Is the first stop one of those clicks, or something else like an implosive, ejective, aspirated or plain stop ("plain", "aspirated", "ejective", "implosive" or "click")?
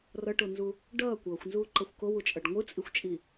plain